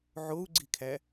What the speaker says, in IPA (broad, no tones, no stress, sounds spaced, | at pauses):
ʕ o u̯ ɡ͡ǀ i kʰ æ